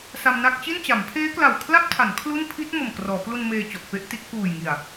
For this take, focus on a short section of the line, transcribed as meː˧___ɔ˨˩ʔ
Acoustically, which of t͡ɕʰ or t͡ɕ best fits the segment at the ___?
t͡ɕ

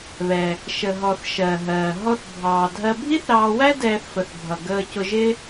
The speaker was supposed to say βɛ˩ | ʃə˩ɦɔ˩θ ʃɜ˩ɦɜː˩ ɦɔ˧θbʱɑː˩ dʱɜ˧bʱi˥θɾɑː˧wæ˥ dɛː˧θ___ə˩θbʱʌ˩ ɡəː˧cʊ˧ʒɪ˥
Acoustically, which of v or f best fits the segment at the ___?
f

